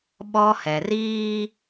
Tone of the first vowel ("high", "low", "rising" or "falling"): high